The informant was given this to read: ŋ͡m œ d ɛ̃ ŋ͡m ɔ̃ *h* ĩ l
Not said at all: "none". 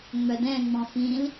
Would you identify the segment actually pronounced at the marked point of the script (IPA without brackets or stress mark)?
f